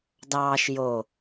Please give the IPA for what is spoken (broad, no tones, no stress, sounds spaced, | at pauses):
d ɑː ʃ j o